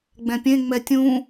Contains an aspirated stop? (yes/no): no